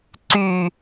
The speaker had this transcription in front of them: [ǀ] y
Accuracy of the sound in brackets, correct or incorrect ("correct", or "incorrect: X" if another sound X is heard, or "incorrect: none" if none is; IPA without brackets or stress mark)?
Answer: correct